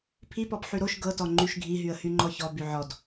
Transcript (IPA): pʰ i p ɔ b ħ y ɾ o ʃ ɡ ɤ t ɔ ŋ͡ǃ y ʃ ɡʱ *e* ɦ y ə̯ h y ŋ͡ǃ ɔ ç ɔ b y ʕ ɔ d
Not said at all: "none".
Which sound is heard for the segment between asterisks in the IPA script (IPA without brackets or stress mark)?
i